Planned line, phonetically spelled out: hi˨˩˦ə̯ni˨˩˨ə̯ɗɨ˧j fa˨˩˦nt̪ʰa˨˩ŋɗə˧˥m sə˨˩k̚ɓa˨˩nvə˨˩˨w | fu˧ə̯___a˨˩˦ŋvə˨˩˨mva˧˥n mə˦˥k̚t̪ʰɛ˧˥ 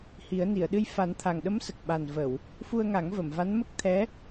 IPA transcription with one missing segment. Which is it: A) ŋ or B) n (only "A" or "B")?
A